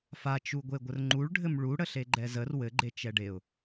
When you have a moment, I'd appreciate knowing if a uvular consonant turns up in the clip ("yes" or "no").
no